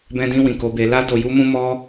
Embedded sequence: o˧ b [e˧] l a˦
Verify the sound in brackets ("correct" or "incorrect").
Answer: correct